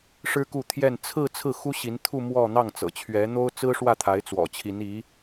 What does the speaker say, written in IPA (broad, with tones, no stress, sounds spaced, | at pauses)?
ʂ ɻ̩˥ k u˥˧ t̪ʰ j ɛ˥˧ n t͡sʰ ɹ̩˥˧ t͡sʰ ɹ̩˥˩ x u˥ ɕ i˧˥ n t̪ʰ u˥˧ m w ɔ˥˧ n̪ ɑ˥˩ ŋ t͡s ɤ̰˨˩ t͡ɕʰ ɥ ɛ˧˥ n̪ o˥ ʊ̯ t͡s ɹ̩˥ ʂ w ä˥˩ t̪ʰ a˧˥ ɪ̯ t͡s w ɔ̰˨˩ t͡ɕʰ i˧˥ n i˧˥